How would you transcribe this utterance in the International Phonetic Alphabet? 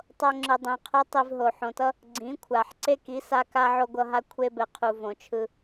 tˤ o˧ ŋ͡ǁ ɯ˨ dˤ ĩ˨ qʰ o˦ tˤ i˧ v ɦ o˨ ħ õ˨ t ʌ˦ | ɡ͡ǀ ĩ˨˦ kʷʰ a˨ ħ ǀ e˦ k i˨˦ s a˦ k a˦ ʕ o˧ ɡʷ ʌ˧ ɦ a˧ kʷʰ e˦ b ɛ˨ qʰ u˨ v õ˨ t͡ʃʰ ɯ˧

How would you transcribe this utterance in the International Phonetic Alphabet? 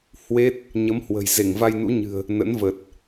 h w e˦˥ t̚ | ɲ ə˨˦ m h w ə̤˨˩ j z e˧˩ ŋ v a˧ j n ṵ˧˥ ɲ ɨ̤˨˩ ə̯ | n ə̰˧˥ n v ə˨˩ t̚

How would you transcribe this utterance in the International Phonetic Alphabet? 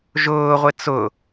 ʒ ʊː ʁʷ ɪ t͡s ʊ

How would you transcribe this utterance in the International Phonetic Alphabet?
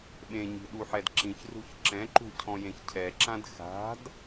ɓ ẽ ɲ i̤ ɗ u ħ ɛ d ǁ ĩ ç r ṳ ç ǁ ɛ̃ ǃ ṳ cʰ ɔ̃ j ẽ ç cʰ ɛ ǁ ã d x a̤ d

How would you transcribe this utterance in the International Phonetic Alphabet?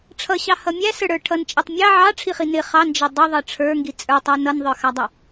ʈ͡ʂʰ ʌ ɕ ɑ h ʌ mʲ æ s ə˞ ɽ ə˞ ʈʰ ʌ n t͡ʃʼ i tˤ mʲ ɑ ʕ ɑ ʈ͡ʂʰ i χ i n ɪ χ ɑ n d͡ʒ ɪ dˤ ɪ ðˤ ʌ ʈ͡ʂʰ ə˞ ŋ ɡ i t͡sʼ ə˞ tˤ æ n ʌ n ðˤ ə˞ x ɑ dˤ ʌ

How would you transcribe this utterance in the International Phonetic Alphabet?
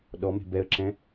ɗ ɔ m e̤ b ɛ ə̯ ǁ ɛ̃

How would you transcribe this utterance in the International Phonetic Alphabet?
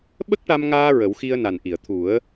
ɓ ə˦˥ k̚ ʈ a˧ m ŋ aː˧ ɹ ə˨˩˦ w x i˧ ə̯ n a˨˩ n ʔ i˨˩˨ ə̯ t̪ʰ u˨˩˦ ə̯

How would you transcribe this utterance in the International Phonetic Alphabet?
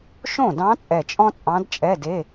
ʃ õ˥˩ d ɑ̃˧˥ t͡sʼ ɛ˧˩ t͡ʃʼ ɔ̃˥ t͡sʼ ɑ̃˧˥ d t͡ʃʼ ɛ˧˥˧ d e˧˥˧

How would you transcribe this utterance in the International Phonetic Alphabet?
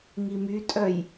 ŋ i m y tʼ œ j

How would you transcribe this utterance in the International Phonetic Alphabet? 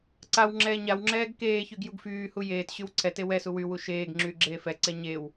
ǀ a w ŋ͡ǁ ɛː ɲ a w ŋ͡ǁ ɛː ɡ k eː ç y ɡ j u ɡ f yː h u j eː t ɕ y w ǀʰ ɛ t e w ɛ s u w y w u ʃ eː ɡ ŋ͡ǁ yː ɡ͡ǁ eː f ɛ ǀ ɛ ɲ e w

